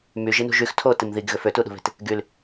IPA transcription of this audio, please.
m y ʒ i n ṳ ʒ y x tʰ o t i m ð i ɡ ɣ ø f ø t u ɗ ṳ β e̤ t | ɡ y l

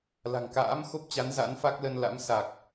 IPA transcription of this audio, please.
l a̤˨˩ ŋ k a̰ː˧˥ m x o˦˥ p̚ t͡ɕ a˨˦ n z a̰˧˥ n f a˦˥ k̚ l ə˧ n l a̰˧˥ m s a˨˩ k̚

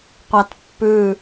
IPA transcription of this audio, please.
qʷ a t pː ʉ

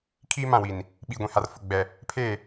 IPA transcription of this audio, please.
kʰ iː˦ m ã˦˨ w i˨ n | ɓ iː˨ ɡʷ ĩ˨ h a˨ r f ʊ˨ ɡ͡b ɛ˨ | pʰ eː˦˨

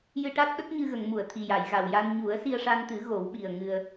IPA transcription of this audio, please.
j ɨ˧ ʈ a˦˥ t̚ ɗ ə˦˥ k̚ ɲ ɨ˧ ɣ ə˨˩˨ ŋ m u˨˩˨ ə̯ t̪ʰ i˨˩ j a˨˩˨ j ɣ a˨˩ w j a˧ n ɲ u˨˩˦ ə̯ s i˧ ə̯ ʂ a˧ n t̪ ɨ˨˩˦ ɣ o˨˩˦ w ɓ i˨˩ ə̯ ŋ ɨ˧ ə̯

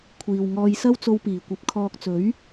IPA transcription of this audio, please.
kʷʰ iː˨ w ŋ ɔː˧ j s ɐ˥ w t͡s o˧ w p iː˨˩ kʷ ɐ˨˥ p̚ kʰ ɔː˧ k̚ t͡s ɵ˨˥ ɥ

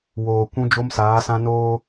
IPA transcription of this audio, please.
w oː˨ kʷ ũ˦ d͡ʒ o˦ m s aː˨˦ s ã˦ n oː˦

